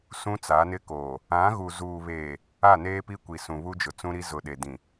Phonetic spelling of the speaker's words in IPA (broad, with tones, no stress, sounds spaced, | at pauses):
s ũ˦ t͡s a˨˦ n ɪ˦ k oː˨ | ã˨˦ ɣ u˨ z uː˨ β eː˨ | a˦˨ n eː˦ p i˦ kʷ i˨ s ũ˨ β u˦ d͡ʒ ʊ˨ t͡s ũ˦ ɾ i˦ z ʊ˨ ɗ e˨ d ĩ˨